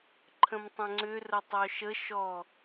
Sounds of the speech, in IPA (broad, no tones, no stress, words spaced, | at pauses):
ǃʰə̃mtˤə̃ŋ͡ǀʏ rətˤœʃə ʃɔ